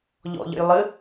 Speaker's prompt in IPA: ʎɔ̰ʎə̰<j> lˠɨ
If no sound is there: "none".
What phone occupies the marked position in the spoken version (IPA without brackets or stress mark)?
j